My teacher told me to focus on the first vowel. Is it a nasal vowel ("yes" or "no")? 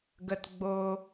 no